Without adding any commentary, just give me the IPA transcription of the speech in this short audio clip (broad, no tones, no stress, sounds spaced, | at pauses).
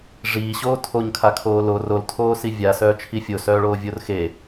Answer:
ʐ iː ɕ oː tʰ o ɲ kʰ a kʰ oː l o r o l tʰ oː s i vʲ a s œː t͡ʃʰ i fʲ o s œː ɭ oː vʲ o r x e